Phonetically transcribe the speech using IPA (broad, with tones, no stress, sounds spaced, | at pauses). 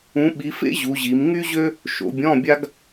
ũ˨˦ ɓ i˨˦ f ḛ˥ ʑ u˨˦ ʑ i˨˦ m ŋ y˥ ʑ ø˥ | ʃ o̰˨˦ bʲ ɔ̃˧˥˧ bʲ a˥ ɡ